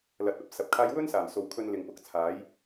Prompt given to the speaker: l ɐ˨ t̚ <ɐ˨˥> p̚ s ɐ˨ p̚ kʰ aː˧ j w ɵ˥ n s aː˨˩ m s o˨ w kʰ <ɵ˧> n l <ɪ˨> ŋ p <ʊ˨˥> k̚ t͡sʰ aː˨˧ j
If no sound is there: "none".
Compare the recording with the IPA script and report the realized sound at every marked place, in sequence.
ɐ˨˥, ɵ˧, ɪ˨, ʊ˨

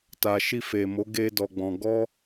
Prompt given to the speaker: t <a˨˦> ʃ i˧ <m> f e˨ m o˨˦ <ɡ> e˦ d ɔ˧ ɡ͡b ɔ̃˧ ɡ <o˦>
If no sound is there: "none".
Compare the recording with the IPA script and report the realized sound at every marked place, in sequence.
a˨, none, ɡ, ɔ˦

